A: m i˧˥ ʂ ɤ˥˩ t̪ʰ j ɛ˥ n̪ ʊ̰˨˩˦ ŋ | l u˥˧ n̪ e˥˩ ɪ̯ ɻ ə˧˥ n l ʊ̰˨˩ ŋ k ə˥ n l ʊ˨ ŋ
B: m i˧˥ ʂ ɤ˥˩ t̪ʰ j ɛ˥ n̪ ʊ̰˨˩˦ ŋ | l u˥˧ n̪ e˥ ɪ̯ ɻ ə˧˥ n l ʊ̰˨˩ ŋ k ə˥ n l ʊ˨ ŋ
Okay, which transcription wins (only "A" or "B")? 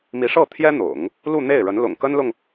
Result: A